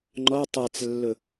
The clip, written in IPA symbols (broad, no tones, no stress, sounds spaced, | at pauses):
ŋ͡ǃ ɔ tˤ a t͡s lː ʊ